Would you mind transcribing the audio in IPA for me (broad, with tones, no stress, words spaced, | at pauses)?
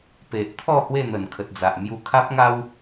pe˨ʔ t̪ʰɔ˥˧ hwe˥˧n̪ə˨˩nkʰə˨t̚d͡za˨ʔ mju˧kʰa˦p̚ŋa˦w